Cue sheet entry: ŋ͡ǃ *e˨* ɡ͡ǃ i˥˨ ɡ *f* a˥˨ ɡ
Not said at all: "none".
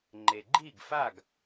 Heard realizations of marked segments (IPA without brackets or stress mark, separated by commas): e˨, f